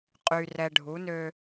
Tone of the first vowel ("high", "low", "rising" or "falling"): low